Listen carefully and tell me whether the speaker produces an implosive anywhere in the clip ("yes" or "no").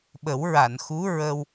yes